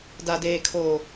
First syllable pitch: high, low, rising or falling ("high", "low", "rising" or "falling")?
low